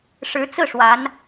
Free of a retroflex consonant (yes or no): no